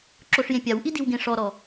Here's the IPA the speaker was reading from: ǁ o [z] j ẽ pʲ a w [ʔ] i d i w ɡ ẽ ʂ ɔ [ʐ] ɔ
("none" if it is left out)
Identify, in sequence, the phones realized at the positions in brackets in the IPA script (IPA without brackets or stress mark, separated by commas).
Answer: ʂ, ʔ, ɾ